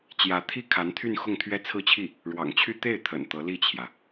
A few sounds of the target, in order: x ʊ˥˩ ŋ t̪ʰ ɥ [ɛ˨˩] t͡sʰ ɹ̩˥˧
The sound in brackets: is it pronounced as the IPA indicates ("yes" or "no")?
no